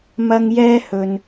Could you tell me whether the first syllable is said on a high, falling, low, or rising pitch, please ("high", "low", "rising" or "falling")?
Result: high